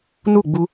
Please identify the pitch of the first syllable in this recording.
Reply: falling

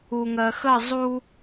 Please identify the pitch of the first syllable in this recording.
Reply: low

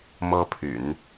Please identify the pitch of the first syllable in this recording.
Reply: high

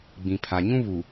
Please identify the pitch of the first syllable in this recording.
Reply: low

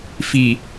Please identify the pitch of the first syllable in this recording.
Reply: low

